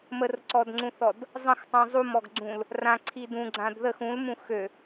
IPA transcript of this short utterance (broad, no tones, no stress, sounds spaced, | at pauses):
m ə r ǀ ɔ d ŋ͡ǀ ũ θ ɔ d | zˤ ə̃ x tˤ ũ zˤ u m ɔ ɡ ɡ͡ǀ ũ l | r ã ǀʰ i d ũ ɡ͡ǀ ã d ð ə x ũ l m ũ x ø